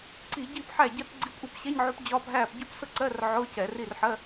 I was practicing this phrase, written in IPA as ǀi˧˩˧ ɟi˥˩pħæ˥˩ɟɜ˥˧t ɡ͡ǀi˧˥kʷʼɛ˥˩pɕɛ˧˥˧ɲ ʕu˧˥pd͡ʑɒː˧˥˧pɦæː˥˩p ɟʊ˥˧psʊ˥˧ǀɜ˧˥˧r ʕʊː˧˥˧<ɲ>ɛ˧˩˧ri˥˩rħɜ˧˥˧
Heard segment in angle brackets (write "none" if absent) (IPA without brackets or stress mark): c